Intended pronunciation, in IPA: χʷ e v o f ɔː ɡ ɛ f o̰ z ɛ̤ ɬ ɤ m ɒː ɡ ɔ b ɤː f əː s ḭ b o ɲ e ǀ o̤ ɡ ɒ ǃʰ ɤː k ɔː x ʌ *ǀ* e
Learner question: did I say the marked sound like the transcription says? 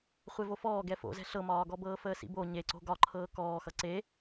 yes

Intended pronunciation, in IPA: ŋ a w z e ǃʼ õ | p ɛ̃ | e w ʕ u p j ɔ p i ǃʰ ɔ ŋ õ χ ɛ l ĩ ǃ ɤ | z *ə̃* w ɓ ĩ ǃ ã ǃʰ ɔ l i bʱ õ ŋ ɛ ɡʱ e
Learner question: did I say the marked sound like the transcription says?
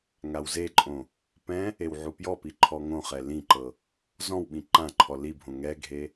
no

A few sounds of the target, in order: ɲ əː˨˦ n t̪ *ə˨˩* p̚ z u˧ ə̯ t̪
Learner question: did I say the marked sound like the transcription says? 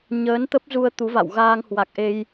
no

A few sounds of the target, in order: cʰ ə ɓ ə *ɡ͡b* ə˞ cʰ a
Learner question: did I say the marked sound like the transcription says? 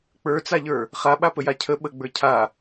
yes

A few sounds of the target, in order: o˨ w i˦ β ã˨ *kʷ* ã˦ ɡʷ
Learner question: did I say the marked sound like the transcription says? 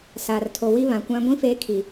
yes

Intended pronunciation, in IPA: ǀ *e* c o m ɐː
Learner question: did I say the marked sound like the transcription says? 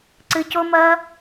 no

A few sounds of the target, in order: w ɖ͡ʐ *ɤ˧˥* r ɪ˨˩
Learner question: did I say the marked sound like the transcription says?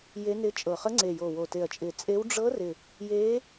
yes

